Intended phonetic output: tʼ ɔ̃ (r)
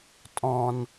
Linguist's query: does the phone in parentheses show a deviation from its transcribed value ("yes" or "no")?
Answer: yes